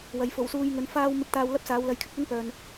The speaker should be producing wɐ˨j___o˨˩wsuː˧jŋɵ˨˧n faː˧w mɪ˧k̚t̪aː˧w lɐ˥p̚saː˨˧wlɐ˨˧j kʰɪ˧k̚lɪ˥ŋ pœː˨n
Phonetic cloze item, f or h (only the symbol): f